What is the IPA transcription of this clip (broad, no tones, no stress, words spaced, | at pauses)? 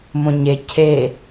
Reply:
mõɲe cʰe